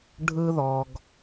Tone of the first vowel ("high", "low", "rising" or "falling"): high